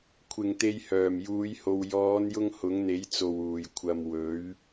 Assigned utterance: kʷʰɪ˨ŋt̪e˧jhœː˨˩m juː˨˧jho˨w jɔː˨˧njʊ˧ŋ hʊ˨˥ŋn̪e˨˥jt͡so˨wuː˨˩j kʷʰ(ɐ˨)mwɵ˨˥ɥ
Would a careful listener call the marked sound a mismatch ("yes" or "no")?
no